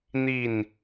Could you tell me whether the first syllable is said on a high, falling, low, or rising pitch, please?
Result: falling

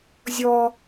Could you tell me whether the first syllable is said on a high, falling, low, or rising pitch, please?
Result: high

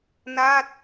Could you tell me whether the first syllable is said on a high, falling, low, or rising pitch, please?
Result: falling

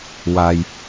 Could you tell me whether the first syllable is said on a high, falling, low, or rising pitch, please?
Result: low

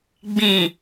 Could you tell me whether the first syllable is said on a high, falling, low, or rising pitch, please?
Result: low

